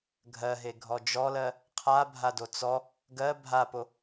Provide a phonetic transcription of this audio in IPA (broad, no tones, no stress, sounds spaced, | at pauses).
ɡʱ ɜ ɦ e ɡʱ ɔ d͡ʒ ɔ l ɜ | qʰ a bʱ a d o t͡s ɔ | ɡ ɜ bʱ a p o